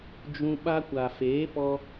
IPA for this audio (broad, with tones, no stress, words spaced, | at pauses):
d͡ʒũ˧ ɓa˧kʷa˨feː˨˦pɔ˧